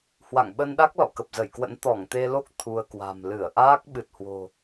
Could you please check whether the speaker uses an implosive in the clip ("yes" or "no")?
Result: yes